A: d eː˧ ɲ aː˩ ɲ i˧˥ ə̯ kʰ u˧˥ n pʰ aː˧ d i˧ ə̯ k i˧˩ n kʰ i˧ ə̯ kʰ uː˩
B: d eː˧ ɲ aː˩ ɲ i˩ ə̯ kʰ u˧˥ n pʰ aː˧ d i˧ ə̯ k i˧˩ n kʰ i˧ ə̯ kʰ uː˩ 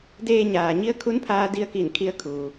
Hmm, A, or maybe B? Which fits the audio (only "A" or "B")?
A